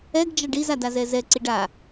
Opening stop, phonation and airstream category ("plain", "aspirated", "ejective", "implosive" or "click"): plain